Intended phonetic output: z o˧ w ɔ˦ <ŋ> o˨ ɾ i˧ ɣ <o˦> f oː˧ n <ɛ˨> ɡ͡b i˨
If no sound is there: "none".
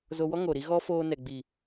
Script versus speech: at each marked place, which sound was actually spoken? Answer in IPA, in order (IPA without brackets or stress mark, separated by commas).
ŋ, ɔ˦, ɛ˨